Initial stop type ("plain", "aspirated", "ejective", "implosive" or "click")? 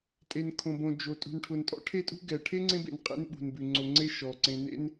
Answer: ejective